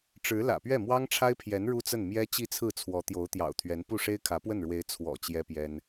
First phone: ʈ͡ʂ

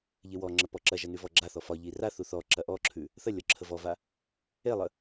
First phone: ʎ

